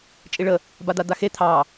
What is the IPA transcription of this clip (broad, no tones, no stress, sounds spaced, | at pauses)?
t͡ʃʼ i ɭ ə | b a d̪ a d̪ a x e t̪ʰ ɑ